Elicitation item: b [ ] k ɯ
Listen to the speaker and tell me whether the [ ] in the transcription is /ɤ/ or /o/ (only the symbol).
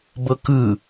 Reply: ɤ